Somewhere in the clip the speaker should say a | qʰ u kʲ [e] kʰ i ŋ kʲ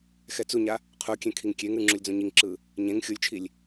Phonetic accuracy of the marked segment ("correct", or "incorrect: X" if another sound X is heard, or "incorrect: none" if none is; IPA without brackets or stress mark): incorrect: ẽ